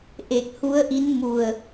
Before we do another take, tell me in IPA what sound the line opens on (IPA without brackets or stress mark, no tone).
ʔ